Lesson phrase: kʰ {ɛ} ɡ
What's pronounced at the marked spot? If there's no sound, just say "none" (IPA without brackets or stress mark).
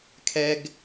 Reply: ɛ